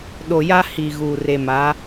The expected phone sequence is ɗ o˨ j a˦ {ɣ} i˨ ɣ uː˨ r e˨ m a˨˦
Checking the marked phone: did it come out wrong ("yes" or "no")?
yes